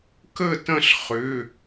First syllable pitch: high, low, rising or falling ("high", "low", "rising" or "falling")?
falling